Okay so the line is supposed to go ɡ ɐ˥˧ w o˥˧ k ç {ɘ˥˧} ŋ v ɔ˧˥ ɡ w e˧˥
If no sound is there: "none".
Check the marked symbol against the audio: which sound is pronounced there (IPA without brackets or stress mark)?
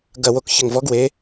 ɘ˥˧